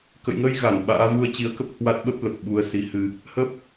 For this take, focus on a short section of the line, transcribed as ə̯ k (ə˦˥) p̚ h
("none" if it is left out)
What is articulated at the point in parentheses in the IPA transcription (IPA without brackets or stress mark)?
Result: ə˦˥